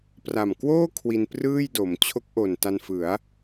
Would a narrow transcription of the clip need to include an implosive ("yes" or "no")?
no